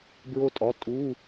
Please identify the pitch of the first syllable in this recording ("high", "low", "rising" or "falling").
high